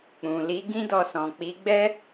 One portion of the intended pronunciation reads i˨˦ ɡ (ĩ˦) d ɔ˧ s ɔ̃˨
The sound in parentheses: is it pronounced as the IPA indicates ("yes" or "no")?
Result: yes